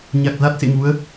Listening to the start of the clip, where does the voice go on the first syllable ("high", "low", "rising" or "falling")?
low